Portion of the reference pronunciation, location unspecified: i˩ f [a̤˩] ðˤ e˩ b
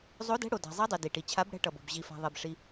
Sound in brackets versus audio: correct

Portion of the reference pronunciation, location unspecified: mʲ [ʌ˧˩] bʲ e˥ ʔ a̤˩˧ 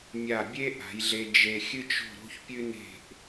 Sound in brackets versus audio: incorrect: a˧˩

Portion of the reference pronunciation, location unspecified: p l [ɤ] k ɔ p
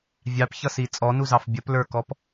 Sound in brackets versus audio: incorrect: ə˞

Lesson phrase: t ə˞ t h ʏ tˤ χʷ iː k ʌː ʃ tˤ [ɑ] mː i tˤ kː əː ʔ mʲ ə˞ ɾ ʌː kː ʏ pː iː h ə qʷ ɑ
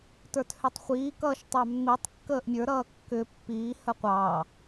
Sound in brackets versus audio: correct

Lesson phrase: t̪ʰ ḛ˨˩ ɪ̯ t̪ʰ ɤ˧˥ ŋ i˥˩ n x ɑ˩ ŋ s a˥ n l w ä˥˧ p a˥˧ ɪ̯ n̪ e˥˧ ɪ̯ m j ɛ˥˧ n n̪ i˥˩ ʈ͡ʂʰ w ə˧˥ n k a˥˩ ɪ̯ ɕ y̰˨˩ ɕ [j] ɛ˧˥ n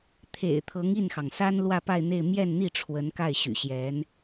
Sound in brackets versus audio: correct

